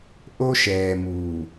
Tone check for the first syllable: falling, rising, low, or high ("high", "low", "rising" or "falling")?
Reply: high